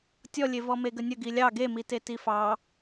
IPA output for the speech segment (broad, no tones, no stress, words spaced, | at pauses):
tʲɔlʲe vɔmeɡənʲə ɡilʲɑ ɡemite tifɑ